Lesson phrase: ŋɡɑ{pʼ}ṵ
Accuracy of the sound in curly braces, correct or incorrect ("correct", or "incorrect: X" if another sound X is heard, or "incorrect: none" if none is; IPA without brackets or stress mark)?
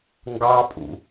correct